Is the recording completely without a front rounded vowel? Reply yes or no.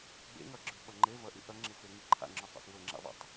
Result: yes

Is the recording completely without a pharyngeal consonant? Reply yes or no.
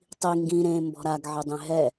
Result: no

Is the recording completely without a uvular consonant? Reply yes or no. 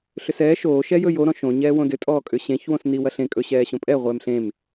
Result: no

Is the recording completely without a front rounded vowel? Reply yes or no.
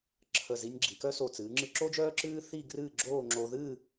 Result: no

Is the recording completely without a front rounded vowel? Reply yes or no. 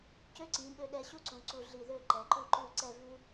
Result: no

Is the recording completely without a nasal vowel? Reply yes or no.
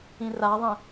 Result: no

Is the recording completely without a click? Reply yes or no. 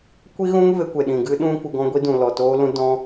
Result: yes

